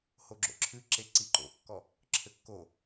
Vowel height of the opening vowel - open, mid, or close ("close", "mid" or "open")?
mid